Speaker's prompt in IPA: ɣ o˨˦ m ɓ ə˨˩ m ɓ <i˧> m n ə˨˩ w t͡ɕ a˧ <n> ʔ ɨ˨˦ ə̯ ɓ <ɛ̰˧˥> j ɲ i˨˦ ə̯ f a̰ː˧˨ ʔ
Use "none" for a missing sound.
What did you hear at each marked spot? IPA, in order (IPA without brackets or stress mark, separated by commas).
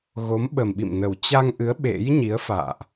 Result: ḭ˧˨, ŋ, ḛ˧˥